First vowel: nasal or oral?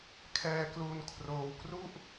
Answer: oral